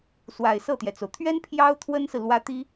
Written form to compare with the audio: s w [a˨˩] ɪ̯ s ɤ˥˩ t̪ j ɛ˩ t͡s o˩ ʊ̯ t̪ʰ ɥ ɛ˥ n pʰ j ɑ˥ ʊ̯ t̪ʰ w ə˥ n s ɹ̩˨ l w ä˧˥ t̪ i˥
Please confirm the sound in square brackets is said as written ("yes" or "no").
yes